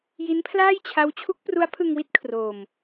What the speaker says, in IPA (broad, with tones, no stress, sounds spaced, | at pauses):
j i˦˥ n pʰ l aː˥˩ j t͡ɕʰ a˦˥ w t͡ɕʰ u˦˥ k̚ p r u˦˥ a̯ pʰ ɯ˧ ŋ w i˥˩ t̚ kʰ r o˧ m